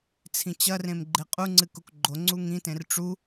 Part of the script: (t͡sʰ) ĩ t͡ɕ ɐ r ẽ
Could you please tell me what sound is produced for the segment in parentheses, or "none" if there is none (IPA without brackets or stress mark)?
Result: t͡sʰ